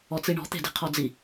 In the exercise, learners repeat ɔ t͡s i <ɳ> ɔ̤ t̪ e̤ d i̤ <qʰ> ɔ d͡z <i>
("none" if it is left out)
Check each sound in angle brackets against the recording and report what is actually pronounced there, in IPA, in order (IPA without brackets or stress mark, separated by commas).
ɳ, qʰ, i